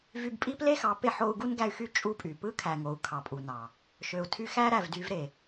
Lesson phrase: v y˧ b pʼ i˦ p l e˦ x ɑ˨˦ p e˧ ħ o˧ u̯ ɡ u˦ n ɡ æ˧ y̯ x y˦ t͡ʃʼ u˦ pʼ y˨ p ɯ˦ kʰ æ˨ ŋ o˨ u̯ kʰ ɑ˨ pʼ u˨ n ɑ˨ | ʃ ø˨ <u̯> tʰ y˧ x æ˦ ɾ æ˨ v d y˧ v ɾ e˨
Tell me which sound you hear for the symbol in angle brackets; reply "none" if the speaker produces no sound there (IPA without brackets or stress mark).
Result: u̯